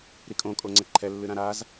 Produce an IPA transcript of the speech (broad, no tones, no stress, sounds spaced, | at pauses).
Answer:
ɾ i kʼ õ kʼ o ŋ͡ǀ ɛ ǃʰ ɛ lː ɨ ɾ ã ɾ a z